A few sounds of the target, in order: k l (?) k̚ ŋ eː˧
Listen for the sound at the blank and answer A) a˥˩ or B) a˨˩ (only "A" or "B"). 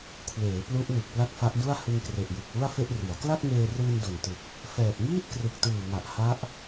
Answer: A